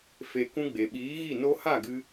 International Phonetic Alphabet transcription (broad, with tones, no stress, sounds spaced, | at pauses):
f e˨ k ũ˧ ɡ͡b e˨ ɓ iː˨˦ ɣ i˦˨ n o˧ h a˦˨ ɡ ɨ˧